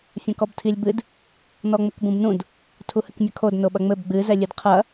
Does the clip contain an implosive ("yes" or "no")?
yes